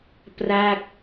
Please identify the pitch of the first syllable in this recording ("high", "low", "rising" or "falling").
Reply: falling